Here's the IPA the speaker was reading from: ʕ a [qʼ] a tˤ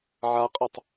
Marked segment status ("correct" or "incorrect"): correct